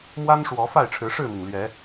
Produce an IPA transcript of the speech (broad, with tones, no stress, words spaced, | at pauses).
mwa˦nʂwɔ˨˦ fa˥˨ɪ̯ʈ͡ʂʰɻ̩˨˦ʂɻ̩˥˨mi˩ŋ lɥɛ˨˦